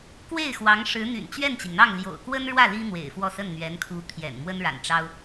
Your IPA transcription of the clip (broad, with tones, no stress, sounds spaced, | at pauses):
k w e˥˩ ɪ̯ x w ɑ˧˥ ŋ ʂ ɻ̩˧˥ n̪ y̰˨˩ n t͡ɕ ɥ ɛ˥˩ n t͡ɕ i˩ ŋ n̪ ɑ˥˩ ŋ l j o̰˨˩ ʊ̯ k w ə˥ n ɻ w ä˥˩ l i˥ n̪ w ḛ˨˩ ɪ̯ f w ɔ˥˧ s ə˥˩ n n̪ ɥ ɛ˧˥ n kʰ u˧˥ t̪ʰ j ɛ̰˨˩ n m w ə˥ n ɻ a̰˨˩ n ʈ͡ʂ ɑ˥ ʊ̯